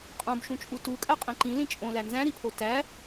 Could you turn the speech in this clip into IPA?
qʼõbʃũt͡ʃʼu tukʼæqʼĩ ǃĩlĩ t͡ʃʼõlæ nzæ̃ɾipʰo tæ

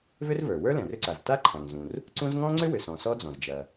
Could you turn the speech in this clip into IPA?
vʏ˥rvə˞˩ wə˞˥ lɛ̃˩rʏ˥ǀa˩z ta˥ǃʰã˩ŋzũ˩r | ǀũ˥z ŋɔ̃˥ŋ͡ǀʏ˥wʏ˩sɔ̃˩ sɔ˥d͡zɔ̃˩z d͡ʒɐ˩

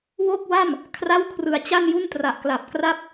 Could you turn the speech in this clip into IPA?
wo˥˩k̚wa˥˩m | kʰra˥˩wkʰrɯ˧a̯t͡ɕa˥˩n ju˥˩ntra˨˩ʔkla˨˩p̚kra˥˩p̚

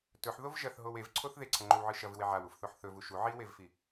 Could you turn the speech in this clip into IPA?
tɵħðov ʒɐθɦow evǀʰoθ ðeǀʰɐŋ͡ǃɵwʕɨ ʃɐvɨwe ʕawufθoħ θɵvu ʃu ʕiwevfi

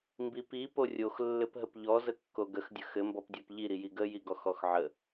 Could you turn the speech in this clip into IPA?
mbipi porʲox lːɘpɦəpʎɔ zəkːoɡəx dʲəxɘ mbɔpdʲɔpʎi ɾijiɡə jiɡɔxɔxʕə

